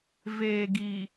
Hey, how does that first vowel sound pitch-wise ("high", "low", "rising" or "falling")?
low